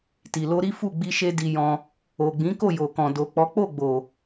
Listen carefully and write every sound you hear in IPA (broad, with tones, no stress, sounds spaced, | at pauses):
t i˨ l o˧ ɾ i˦ f u˦˨ ɡ͡b i˧ ʃ e˦ d i˧ j ɔ̃˧ | o˨ ɡ͡b ĩ˨˦ k o˦˨ j o˨ k ɔ̃˨ d o˨ k͡p ɔ˨˦ k͡p o˦˨ ɡ͡b o˨